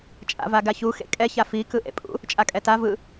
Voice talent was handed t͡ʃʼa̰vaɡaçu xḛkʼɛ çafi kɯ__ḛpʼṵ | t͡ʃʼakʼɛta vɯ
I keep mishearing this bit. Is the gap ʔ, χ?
ʔ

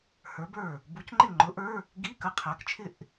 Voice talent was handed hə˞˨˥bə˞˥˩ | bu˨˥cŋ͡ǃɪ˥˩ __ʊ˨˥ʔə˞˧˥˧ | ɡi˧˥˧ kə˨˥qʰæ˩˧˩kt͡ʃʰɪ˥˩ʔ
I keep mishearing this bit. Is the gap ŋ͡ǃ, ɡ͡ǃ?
ŋ͡ǃ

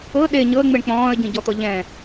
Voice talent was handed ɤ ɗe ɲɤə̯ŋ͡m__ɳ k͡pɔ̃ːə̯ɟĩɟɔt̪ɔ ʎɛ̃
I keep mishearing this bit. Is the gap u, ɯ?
ɯ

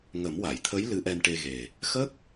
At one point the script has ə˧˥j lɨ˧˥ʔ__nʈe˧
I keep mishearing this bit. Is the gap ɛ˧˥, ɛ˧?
ɛ˧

